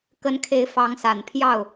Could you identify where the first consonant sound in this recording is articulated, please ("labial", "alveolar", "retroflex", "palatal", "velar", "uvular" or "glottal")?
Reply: velar